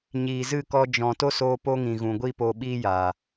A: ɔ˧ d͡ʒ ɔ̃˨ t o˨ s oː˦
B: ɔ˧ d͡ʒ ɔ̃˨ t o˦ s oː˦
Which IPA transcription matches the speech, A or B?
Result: B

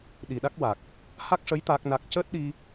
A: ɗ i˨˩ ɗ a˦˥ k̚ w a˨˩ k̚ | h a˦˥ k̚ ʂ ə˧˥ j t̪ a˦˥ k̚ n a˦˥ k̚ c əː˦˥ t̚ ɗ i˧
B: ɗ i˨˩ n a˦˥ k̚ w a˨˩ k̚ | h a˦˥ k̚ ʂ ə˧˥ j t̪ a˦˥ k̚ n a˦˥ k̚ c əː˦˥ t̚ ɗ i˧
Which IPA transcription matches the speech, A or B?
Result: A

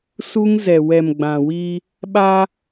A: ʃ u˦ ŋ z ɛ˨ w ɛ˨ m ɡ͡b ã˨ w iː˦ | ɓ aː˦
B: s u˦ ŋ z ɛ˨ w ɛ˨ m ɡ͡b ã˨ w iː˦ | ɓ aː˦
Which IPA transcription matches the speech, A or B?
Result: B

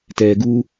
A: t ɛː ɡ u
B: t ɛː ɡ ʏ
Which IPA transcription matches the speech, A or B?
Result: A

